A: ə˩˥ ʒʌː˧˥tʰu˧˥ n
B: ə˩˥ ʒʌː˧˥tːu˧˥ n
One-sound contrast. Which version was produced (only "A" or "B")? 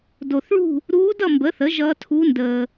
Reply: A